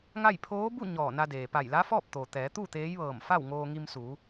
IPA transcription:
ŋ a˥˨ j pʰ oː˧˥ b u˥˨ ɲ ɔː˧˩ n a˧ d eː˩ p a˧˩ j l a˧˥ f ɔː˥˨ p̚ t̪ o˩ t̪ ɛː˩˧ t̪ u˥˨ t̪ eː˧˥ j ʋ ɤː˧˩ m f a˥˨ w ŋ oː˧ ŋ i˧ m s uː˩˧

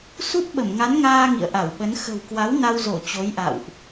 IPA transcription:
s u˦˥ t̚ ɓ ə˧˩ m ŋ a˨˦ n ŋ aː˧ ŋ ḭ˧˨ ə̯ ʔ a˧˩ w ɓ ə˨˦ n x ə̤˨˩ w k w a˨˦ w n a˧ w z o˧˩ t͡ɕ o˨˦ j ʔ a̰˧˨ w ʔ

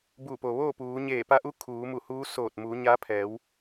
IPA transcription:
b u˧˩ p o˩ ʋ oː˥˨ p uː˩˧ ɲ eː˧˩ p a˧ ʔ u˧˥ kʰ uː˩˧ m u˧˩ h uː˧˥ s oː˧˩ t̚ m uː˩˧ ɲ a˧˥ pʰ ɛː˩˧ w

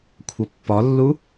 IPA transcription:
kʷʰ ʌ pː ɒ lː u

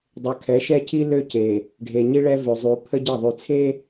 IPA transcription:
dˤ ø˨ kʰ ɛ˨˦ ʃ ɛ˦ cʰ i˦ l ø˦ c e˨ | ɖʱ e˨ ɲ i˦ ɭ ɛ˦ v ø˨ zˤ y˨ pʰ ə˦ ɟ e˦˨ ðˤ y˨ t͡sʰ e˦

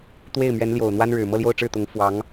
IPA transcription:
t̪ w e˥˩ ɪ̯ m ɥ ɛ˧˥ n l j o˨˩ ʊ̯ n̪ w a˥ n ɻ ɻ̩˨˩ m ɤ˥˧ l j o˥˧ ʊ̯ ʈ͡ʂ ɻ̩˥˩ t̪ ʊ˧˥ ŋ f w ɑ˧˥ ŋ

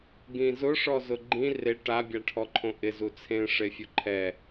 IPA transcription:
ɡ ĩ z ʊ ʂ ɔ z ʊ ɡ͡ǃ ĩ r e ʈ a bʲ a ʈʰ ɔ ǃʰ õ ʔ ɪ z u t͡sʰ ẽ ʂ e fʲ ʊ ǃʰ ɛ

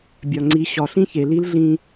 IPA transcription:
bʲ ɒ˩ ŋ͡ǀ i˩˧ ɕ ɒ˩ ɬ ĩ˥ ç e˩ l i˧˥ l ɮ ĩ˧

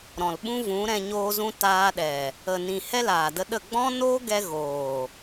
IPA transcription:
ɾ ɔ̃˨ l ɓ ũ˦ v ũ˨˦ ɾ ɛ̃˧ ɲ oː˧ z ũ˧ t aː˧ ɗ ɛ˨ | ə˨ n ĩ˨ h ɛ˦ l aː˨ d ə˧ ɗ ə˦˨ ɡ͡b ɔ̃˦ n oː˦ ɡ ɛ˧ ɣ oː˨

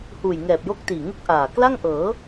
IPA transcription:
h uː˨˩ j ŋ ɛː˨˩ p̚ j o˥˩ k̚ t iː˨˩ ŋ u˥˩ k̚ ʔ aː˨˩ k l a˥˩ ŋ ʔ ɤː˩˦

